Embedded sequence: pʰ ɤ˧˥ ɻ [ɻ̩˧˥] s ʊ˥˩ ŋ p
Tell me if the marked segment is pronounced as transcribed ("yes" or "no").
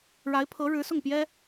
yes